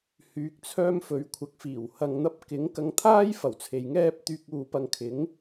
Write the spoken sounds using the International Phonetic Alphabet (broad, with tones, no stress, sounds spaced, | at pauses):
h yː˨˥ k̚ t͡sʰ œː˥ m f ɵ˨˥ ɥ kʷʰ ɐ˧ k̚ f iː˨˩ w h ɐ˧ ŋ n̪ ɐ˥ p̚ k ɪ˨˥ ŋ k ɐ˧ ŋ t̪ʰ aː˥ j f ɐ˨˩ w t͡sʰ e˨ j ŋ ɛː˥ p̚ t̪ yː˧ k̚ uː˧ p ɐ˧ ŋ kʰ ɪ˨˥ ŋ